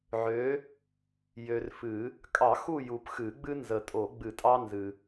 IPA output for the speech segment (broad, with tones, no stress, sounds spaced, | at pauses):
ʕ ø˨˥ | j ø˨ r f ɨ˨˩˦ | kʼ ɑ˨˩˦ x u˦˨ j u˨ p x ɨ˨˩˦ ɡ͡b ɨ˦ n z ə˨ tʼ o˨˩˦ ɡ͡b ɨ˨˩˦ tʼ ɑ˦ n z ɨ˨